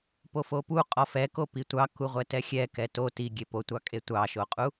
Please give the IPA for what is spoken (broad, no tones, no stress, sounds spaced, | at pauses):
p o f o p u qʼ ɔ f ɛ k o p i tʷ ɑ k u ʁʷ ɛ t ɛ xʲ ɛ k ɛ t o t i ɡʲ e p o tʷ ɑ kʼ e tʷ ɑ ʃ o qʼ u